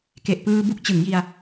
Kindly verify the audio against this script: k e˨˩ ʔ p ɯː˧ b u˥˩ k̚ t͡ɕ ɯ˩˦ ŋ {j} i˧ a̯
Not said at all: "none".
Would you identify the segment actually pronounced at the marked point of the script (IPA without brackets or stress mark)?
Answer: j